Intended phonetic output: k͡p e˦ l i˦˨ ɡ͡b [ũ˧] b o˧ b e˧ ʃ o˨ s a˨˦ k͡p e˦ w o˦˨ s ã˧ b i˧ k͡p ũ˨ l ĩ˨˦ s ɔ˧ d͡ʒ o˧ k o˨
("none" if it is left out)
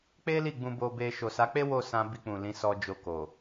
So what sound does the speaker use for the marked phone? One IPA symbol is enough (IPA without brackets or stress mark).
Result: ũ˧